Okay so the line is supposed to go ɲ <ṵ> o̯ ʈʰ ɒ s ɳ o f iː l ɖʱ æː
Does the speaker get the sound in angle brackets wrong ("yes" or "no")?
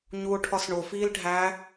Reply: yes